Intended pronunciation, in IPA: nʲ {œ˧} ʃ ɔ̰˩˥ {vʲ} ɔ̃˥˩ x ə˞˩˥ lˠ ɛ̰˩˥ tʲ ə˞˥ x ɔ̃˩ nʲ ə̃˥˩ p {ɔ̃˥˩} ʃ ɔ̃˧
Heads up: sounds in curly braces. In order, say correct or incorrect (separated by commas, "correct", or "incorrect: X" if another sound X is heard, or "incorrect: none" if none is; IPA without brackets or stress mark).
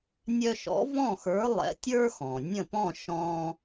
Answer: correct, incorrect: v, correct